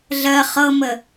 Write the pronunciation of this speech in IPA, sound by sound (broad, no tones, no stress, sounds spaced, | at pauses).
ɮ ɜ χ ɤ m ə